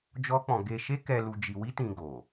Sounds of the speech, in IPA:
d͡ʒɔ˦k͡pɔ̃˧ ɡe˧ʃe˦kɛ˧ lu˧d͡ʒi˧ wi˦tĩ˧ ɡo˨

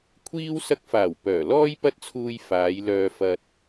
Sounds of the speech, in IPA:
kʷʰiː˥w sɐ˧k̚faː˨˩w pœː˨˩lɔː˥j pɐ˥t̚t͡sʰuː˧j faː˨˧jlœː˧fɐ˧t̚

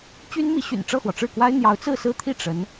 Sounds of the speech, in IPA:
t͡ɕy˥nmi˧˥ɕy̰˨˩n ʈ͡ʂɤ˥˩xwɔ˩ ʈ͡ʂɻ̩˥˩kwa˥ɪ̯ n̪jɑ˧˥ʊ̯t͡sɹ̩˥˩sɹ̩˥t̪ʰi˥˩ ʈ͡ʂə˧˥n

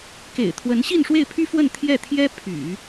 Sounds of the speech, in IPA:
kḛ˨˩ɪ̯t̪ʰwə˧˥n ɕi˥˧nʂwe˥˩ɪ̯pʰy˥fwə˥˧n t̪ʰjɛ˥˩t̪ʰjɛ˥ pʰy̰˨˩˦

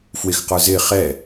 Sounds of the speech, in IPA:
fwɪxqə˞ zɪ χɛ

